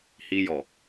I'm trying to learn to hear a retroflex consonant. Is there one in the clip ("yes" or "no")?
no